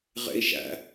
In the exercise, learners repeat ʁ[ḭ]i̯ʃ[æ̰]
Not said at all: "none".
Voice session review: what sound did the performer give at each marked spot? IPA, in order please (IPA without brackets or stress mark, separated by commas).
ḛ, æ̰